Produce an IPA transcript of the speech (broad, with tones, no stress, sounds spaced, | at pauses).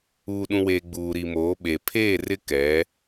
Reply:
uː˨ ɗ ũ˨ w eː˨ ɡ͡b uː˨ ɾ i˨ m oː˨˦ ɓ eː˨ pʰ eː˦˨ r ɪ˦ k ɛ˨˦